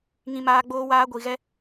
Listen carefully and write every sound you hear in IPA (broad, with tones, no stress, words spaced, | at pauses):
ŋĩ˦maː˦ ɡ͡boː˦waː˦ɡʷi˧ɣɛ˦